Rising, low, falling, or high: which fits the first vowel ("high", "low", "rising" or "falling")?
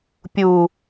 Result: low